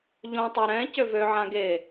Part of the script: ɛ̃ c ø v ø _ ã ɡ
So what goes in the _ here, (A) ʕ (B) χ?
A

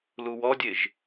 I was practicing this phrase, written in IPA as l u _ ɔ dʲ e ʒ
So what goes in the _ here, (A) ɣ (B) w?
B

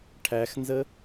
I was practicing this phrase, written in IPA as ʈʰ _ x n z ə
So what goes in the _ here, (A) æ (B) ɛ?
A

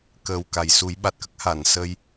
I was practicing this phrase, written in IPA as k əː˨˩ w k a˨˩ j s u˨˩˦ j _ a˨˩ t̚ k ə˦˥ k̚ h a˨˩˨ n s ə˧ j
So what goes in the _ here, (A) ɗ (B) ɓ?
B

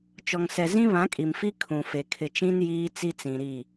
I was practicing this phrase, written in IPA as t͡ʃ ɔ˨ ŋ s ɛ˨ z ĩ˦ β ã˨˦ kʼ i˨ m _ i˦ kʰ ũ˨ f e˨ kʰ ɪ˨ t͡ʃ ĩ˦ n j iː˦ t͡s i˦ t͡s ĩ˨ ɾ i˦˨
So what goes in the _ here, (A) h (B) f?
B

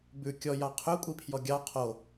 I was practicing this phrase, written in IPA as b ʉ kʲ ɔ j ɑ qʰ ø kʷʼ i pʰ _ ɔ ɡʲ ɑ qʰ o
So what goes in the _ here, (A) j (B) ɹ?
A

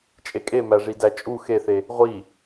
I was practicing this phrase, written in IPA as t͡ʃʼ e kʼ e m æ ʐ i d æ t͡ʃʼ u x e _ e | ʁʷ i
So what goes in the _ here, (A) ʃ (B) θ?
B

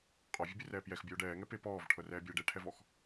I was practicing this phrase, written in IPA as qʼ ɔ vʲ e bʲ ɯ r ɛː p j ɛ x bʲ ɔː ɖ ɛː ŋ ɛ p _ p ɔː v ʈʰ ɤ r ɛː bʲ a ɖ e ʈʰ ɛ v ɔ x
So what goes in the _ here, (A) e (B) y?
A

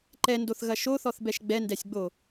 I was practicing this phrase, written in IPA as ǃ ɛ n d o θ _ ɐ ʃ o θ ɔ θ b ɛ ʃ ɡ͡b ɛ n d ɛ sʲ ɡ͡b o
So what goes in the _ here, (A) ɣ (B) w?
A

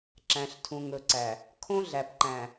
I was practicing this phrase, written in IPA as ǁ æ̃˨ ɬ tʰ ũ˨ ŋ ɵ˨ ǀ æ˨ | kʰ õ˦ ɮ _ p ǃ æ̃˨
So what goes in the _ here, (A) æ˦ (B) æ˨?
B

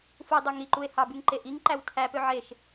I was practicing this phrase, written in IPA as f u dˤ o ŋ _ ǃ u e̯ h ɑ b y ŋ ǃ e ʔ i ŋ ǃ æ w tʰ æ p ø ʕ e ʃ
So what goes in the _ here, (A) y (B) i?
B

